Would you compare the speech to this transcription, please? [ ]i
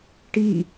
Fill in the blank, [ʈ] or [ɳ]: ʈ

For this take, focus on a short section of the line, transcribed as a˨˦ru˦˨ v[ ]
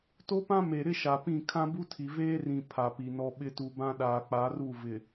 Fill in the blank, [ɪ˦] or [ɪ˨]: ɪ˨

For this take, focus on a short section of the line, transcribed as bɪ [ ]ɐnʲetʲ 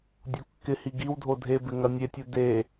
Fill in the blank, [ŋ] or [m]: ŋ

